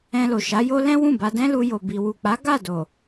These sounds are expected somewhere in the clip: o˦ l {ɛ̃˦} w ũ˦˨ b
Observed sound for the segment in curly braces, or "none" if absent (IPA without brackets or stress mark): ɛ̃˦